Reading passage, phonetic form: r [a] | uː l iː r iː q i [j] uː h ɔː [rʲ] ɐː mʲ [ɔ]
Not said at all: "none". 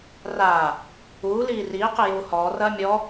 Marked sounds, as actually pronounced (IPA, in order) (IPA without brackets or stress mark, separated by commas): aː, j, r, ɔː